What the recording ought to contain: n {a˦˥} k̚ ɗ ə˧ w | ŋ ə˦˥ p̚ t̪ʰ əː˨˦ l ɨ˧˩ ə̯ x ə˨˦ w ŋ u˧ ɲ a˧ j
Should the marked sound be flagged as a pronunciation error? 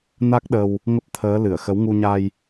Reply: no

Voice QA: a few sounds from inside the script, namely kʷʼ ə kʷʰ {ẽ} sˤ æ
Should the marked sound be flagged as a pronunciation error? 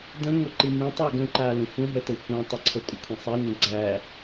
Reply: yes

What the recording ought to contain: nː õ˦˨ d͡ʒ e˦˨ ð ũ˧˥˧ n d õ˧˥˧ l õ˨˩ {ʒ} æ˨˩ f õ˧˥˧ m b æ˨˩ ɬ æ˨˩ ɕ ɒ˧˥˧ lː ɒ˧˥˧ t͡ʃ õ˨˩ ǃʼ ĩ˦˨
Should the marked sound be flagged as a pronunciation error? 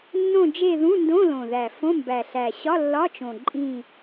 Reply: yes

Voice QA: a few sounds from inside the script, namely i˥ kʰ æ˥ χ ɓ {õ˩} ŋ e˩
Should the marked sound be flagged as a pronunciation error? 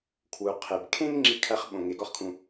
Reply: no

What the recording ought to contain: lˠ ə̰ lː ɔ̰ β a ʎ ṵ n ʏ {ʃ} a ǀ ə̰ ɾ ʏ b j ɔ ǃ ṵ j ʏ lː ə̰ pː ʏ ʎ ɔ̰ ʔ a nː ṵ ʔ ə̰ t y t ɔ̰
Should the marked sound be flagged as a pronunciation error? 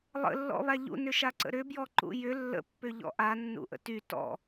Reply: no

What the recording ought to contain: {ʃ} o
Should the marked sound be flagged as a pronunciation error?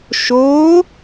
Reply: no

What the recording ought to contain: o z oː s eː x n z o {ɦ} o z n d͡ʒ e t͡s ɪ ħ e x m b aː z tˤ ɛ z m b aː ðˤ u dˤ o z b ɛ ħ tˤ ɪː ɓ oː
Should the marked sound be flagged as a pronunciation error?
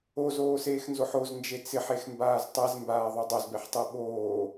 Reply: yes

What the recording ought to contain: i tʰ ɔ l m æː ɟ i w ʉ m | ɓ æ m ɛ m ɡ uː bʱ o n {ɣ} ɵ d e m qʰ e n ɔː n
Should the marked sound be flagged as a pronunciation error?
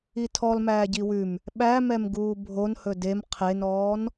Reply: yes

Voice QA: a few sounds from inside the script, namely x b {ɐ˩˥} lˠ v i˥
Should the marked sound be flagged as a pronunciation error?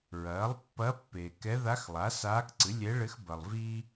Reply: yes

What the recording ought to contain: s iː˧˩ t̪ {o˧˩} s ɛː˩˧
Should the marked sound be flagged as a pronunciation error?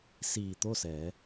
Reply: yes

